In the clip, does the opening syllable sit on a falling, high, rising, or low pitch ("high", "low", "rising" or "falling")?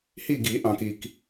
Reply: falling